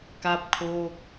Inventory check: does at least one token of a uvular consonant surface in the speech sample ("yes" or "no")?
no